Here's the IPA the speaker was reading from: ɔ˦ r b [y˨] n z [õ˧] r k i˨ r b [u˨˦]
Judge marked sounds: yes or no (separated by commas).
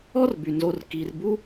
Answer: yes, no, no